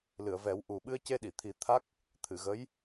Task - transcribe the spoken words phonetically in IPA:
l ɨ˨˩˨ ə̯ v ɛ˨˩˦ w ʔ u˨˩ ɓ ɨ˧ ə̯ c e˧ ɗ i˨˩˨ t̪ʰ i˨˩˦ t̪ʰ a˦˥ k̚ | t̪ʰ ɨ˨˩˨ ɣ ə˧˥ j

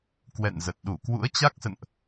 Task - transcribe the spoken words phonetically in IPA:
k w ɛ̰˧˨ n z ə˨˩ t̚ ɗ u˧˩ k w ṵ˧˥ ə̯ t͡ɕ a˦˥ k̚ s ə̰˧˨ n ʔ

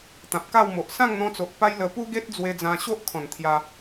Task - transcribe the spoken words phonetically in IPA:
t̪ ã˨ p̚ k a˥˧ w m o˨ ʔ s ã˥˧ ŋ n̪ ɔ̃˧ t͡s o˨ ʔ p a˦ j l ə˧ p u˦ ɡ e˦ t̚ d͡z w e˧ d͡z ã˧ ɕ o˦ ʔ kʰ ɔ̃˨˩ n t̪ʰ j a˧

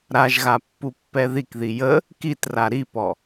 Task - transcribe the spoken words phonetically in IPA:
ɾ a ʒ ɣ a pː u pː ɛ ð i k ð i j ə | k i t r a ɾ i p ɔ

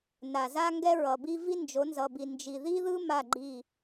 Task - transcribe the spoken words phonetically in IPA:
n a˨ z a˦ ŋ ɡ ɛ˦ ɹ ʌ˨ b i˦ v i˦ n d͡ʒ o˨˦ n z ʌ˨ b i˨ n d͡ʒ i˨ ð i˦ ð ɯ˦ m a˦˨ ɡ͡ǃ i˦˨

